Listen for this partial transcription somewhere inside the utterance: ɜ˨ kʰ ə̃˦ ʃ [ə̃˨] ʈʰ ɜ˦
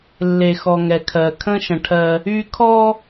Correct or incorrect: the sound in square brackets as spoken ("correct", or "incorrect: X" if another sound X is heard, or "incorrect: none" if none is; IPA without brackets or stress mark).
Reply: correct